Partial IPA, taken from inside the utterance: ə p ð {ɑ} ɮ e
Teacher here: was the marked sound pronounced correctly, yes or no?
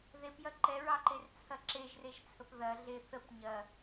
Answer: no